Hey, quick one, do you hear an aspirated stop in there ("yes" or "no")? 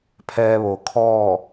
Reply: yes